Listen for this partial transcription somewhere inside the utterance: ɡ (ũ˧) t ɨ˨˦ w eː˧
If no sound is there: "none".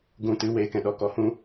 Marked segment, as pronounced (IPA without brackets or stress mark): ũ˧